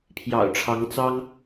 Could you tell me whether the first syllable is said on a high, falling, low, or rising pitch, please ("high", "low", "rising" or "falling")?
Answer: low